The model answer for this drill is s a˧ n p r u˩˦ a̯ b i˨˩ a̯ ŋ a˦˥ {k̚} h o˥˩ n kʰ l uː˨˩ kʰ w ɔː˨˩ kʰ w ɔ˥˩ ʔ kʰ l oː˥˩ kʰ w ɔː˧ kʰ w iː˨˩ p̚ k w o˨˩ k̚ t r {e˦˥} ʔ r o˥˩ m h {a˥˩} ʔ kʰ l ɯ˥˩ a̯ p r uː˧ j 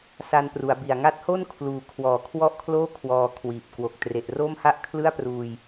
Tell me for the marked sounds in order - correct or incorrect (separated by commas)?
incorrect, incorrect, correct